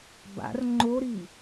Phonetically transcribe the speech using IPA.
b a̰ r ŋ͡ǃ o ɾ i

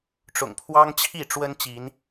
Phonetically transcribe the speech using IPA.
ʈ͡ʂ ʊ̰˨˩ ŋ pʰ w ɑ˦ ŋ t͡ɕʰ i˥˨ ʈ͡ʂ w ə˦ n t͡ɕ i˨˦ n

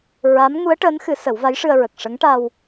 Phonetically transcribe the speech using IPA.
ɹ a˧˥ m ŋ u˧˥ ə̯ ʈ əː˧˥ n x ɨ˨˩˦ s ə˨˩˦ w v a˧˥ j ʂ ɨ˧ ə̯ ɹ ə˨˩ k̚ ʂ ə˧˥ ŋ ʈ a˧ w

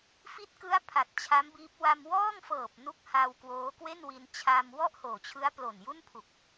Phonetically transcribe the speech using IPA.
f i˦˥ t̚ k ɯ˦˥ a̯ pʰ a˨˩ t̚ t͡ɕʰ a˦˥ m b iː˦˥ p̚ w a˧ m w ɔː˥˩ ŋ f ɤː˨˩ p̚ n u˦˥ k̚ h a˧ w k w oː˦˥ k w e˥˩ n w i˧ n t͡ɕʰ a˧ m w ɔ˥˩ ʔ h oː˨˩ t͡ɕʰ ɯ˦˥ a̯ p l o˨˩ n j u˥˩ n pʰ u˨˩ k̚

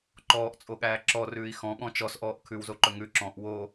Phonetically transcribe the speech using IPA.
ǃ ɔː ʔ t͡sʼ o ɠ æː ǁ ɔ r ʉː i̯ x ɔ̃ ɠ ɔ̃ t͡ʃ ɔ s ʔ ɔː ʔ kʰ ʉ w z o ǃ ɵ ŋ ʉ ǁ ɔ̃ ʔ w o

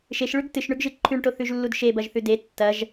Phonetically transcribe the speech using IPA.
ʃ e ʃ ɭ ʉ ɡ t ɨ ʃ ɳ ʉ ɡ ʒ ɨ ǃʰ ʉ ɳ ʈ o θ ʉ ʒ lː u d ʃ e b ɐ ʒ θ ʉ d e tː ɐ ʒ

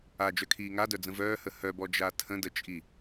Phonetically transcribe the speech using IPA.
a d͡ʒ œ kʰ iː ŋ a d œ d͡z ə̃ v œː h ə h œ b ɔ d͡ʒ a tʰ ə̃ d ə t͡ʃʼ i

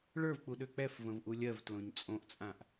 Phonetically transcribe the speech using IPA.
ɭ ə˞ v k͡p u ɗ ø k͡p ɛ f v ə̃ v ʔ u lʲ ɜ v t l õ ɲ t͡sʼ õ ʔ t͡sʼ ã ʔ

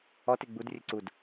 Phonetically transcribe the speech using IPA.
ɔ t e ɡ͡b u d rʲ ɘ ǀ u d

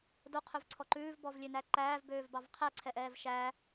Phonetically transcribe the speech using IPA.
d o qʰ ɵ v ǀʰ ɔ ǃ ʉː v b ɔ v lʲ ø n æ ǃ æː v b øː v b ɑ v qʰ æ ǀʰ ɛ ʔ ɛː v ʃ æ

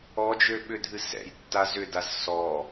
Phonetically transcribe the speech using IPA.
ɔ d͡ʒ ø ɓ ʏ dʱ ɨ s ɛ̰ j tː a z ʏ d a z s ɔ

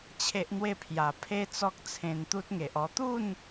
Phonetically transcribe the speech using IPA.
t͡ɕʰ e˦ ʔ n̪ w e˥˧ pʰ j a˨˩ pʰ e˦ t͡s ɔ˦ k̚ t͡sʰ ẽ˧ n t̪ u˦ t̚ ŋ e˨ ʔ ɔ˧ t̪ u˥˧ n

